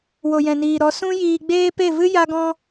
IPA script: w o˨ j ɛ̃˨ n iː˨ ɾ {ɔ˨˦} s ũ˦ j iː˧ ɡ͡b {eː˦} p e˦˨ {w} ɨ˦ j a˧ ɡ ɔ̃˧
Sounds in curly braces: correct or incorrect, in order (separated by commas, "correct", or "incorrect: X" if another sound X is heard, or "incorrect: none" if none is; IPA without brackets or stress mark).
correct, correct, incorrect: v